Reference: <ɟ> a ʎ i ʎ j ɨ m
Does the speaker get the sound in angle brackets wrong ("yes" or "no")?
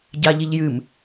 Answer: no